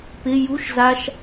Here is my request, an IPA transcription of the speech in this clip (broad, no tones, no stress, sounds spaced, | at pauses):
p ɪ j u ʃ z a ʃ